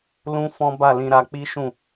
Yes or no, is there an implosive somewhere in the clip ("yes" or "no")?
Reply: no